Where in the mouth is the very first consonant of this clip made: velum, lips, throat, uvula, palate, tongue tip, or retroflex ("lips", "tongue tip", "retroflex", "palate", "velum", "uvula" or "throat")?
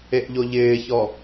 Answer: throat